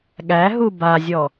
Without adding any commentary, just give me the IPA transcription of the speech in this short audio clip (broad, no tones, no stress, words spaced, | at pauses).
ɠæɦu bazʲɔ